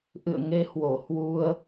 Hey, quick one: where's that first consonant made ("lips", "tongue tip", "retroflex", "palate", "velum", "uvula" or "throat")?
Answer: throat